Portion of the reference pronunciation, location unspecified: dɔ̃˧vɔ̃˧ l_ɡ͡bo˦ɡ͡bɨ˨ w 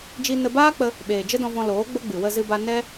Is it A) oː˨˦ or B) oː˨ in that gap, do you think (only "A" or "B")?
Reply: A